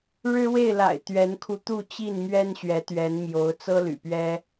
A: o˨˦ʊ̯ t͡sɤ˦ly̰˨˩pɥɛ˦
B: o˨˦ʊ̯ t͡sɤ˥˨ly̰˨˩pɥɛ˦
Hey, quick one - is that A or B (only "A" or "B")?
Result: A